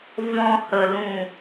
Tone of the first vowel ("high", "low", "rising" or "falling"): low